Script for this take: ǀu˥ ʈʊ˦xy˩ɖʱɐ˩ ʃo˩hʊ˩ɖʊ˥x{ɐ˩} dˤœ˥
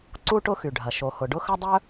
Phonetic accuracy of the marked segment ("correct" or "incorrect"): incorrect